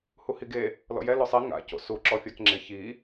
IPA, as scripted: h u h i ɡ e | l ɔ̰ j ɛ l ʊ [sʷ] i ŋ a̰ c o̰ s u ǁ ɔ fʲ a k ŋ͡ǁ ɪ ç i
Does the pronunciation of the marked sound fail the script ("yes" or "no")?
yes